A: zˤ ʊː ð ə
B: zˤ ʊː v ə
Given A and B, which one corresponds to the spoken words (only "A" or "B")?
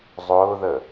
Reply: A